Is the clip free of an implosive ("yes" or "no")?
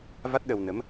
no